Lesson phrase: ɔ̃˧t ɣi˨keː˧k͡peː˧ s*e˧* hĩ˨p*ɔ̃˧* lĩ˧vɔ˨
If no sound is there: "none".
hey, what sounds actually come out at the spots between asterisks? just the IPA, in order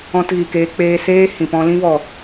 eː˧, ɔ̃˧

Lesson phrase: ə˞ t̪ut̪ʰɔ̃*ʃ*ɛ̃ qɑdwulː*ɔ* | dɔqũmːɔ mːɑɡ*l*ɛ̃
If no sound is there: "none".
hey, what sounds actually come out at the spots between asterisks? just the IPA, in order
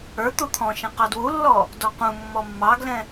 ʃ, ɔ, l

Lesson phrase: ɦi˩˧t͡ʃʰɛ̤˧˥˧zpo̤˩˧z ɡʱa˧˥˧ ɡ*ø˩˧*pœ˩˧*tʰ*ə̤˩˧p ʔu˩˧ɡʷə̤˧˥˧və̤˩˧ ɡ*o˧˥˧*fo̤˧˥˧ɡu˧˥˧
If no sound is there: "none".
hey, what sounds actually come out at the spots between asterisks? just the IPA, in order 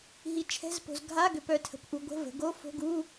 ø˩˧, tʰ, o˧˥˧

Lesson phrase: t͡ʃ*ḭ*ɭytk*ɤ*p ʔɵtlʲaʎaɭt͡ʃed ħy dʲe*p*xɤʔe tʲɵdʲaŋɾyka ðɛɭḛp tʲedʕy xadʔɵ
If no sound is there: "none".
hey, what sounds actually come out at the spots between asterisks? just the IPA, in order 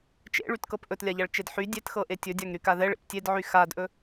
ḛ, ɤ, t

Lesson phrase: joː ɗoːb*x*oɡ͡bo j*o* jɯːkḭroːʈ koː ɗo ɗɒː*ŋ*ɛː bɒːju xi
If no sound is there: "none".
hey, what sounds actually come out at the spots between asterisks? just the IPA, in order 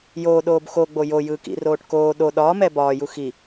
x, o, m

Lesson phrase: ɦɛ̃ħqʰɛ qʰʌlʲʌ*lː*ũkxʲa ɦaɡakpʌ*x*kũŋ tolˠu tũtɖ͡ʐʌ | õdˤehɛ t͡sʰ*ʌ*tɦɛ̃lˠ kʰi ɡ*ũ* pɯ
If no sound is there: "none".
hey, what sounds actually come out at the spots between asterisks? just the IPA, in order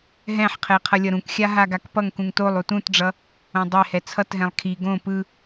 ɾ, ŋ, ʌ, õ

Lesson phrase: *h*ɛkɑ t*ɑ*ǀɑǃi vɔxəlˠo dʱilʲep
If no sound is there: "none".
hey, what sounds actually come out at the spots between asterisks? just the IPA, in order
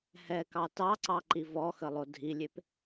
h, ɑ

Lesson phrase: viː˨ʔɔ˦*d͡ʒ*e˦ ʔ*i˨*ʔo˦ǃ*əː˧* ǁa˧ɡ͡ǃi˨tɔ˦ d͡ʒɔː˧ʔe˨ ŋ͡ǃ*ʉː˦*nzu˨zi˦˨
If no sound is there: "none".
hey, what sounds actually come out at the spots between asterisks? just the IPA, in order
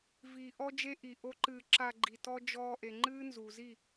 d͡ʒ, i˨, ɨː˧, ɨː˦

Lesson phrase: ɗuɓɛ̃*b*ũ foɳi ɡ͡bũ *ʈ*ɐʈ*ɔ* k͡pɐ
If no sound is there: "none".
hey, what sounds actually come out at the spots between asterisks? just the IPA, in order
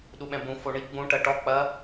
b, ʈ, ɔ

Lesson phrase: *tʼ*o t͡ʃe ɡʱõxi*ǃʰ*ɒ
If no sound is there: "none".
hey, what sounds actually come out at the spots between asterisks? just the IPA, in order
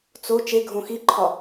t͡s, ǃʰ

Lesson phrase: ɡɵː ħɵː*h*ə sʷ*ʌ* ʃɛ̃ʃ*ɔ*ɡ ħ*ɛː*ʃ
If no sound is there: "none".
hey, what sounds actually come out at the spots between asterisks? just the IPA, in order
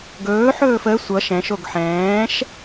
f, ʌ, o, ɛ̃ː

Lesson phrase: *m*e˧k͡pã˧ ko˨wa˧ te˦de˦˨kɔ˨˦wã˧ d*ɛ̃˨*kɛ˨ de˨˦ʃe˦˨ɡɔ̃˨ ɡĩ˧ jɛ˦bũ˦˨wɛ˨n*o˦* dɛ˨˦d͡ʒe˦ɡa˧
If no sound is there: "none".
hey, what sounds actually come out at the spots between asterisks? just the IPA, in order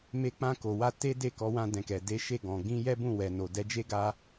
m, ɛ̃˨, o˨

